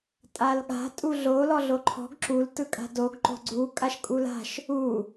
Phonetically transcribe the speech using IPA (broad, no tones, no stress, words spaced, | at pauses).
tʼalɠa̤ tʼuɮo lɔɮoǃʰɔ̤ɡ ǁul tɯkʼa̤doɡ ǃo̤ɡ͡ǀu kʼaʃkʼula̤ʃ | u